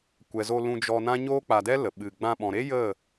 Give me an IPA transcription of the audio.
kʷ ɛ˨ z o˧ l ũ˧ d͡ʒ ɔ˧ n ã˦ ɲ oː˦ k͡p a˧ d ɛ˦ l ə˨ ɓ ɨ˨ ɡ͡b ã˧ ɓ ɔ̃˨ ɾ e˦ j ə˦˨

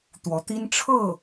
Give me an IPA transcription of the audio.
t̪ w ɔ˧˥ t̪ i˥ n ʈ͡ʂʰ ɤ˥˩

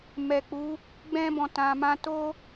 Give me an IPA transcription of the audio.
m ɛ˨ k͡p u˨˦ | ɡ͡b ɛ̃˦ b ɔ̃˧ t ã˨ m ã˧ t o˦

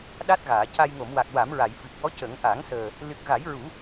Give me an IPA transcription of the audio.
ɗ a˦˥ t̚ ɣ aː˨˩˨ c a˧ j ŋ o˨˩˨ m w a˨˩ k̚ w a˨˩˦ m ɹ a˨˩˨ j f ɨ˨˩ k̚ w ɔ˧˥ c ə˨˩˦ ŋ ʔ a˨˩˦ ŋ s əː˨˩ | l ɨ˨˩ k̚ ɣ a˨˩˦ j ɹ u˨˩˦

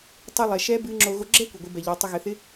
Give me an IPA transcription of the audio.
tˤ ɨ˧ lˠ ɛ˩ ʃ ɛ˧˥ b ɨ˧˥ ŋ͡ǁ o˧ ɣ o˧ ɡ͡ǁ ɛ˥ kʷ ɘ˩ ɡʷ ɨ˩˧ b ɛ˩ ʎ ɔ˩˧ tˤ ɪ˧ ɣ ɘ˩˧ θ ɪ˧˥

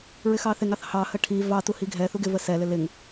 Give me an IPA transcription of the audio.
ɹ ɪ x ɑ θ ɪ ŋ ɑ θ h ɑ h ə ʈʰ i v ɑ t u h i ɡʱ ɛ θ u ɡ ɪ v ə s ɛ l ɪ l ɪ ŋ

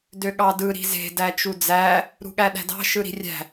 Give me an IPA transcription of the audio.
d ø ɠ ɑ d ɯ ɾ i̤ z e̤ d æ t͡ʃ u d͡z æ | ɾ ṳ ɠ æ ɗ æ̤ d ɑ̤ ʃ ɯ ɾ i̤ rʲ æ̤

